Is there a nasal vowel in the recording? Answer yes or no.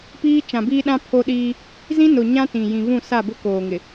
yes